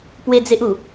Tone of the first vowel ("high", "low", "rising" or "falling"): high